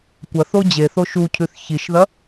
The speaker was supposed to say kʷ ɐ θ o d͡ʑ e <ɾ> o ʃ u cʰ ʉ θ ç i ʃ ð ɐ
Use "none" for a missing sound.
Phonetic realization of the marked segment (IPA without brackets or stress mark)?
θ